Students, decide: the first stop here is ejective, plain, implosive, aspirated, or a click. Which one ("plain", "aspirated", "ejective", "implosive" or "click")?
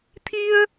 aspirated